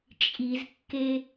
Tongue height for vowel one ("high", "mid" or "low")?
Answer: high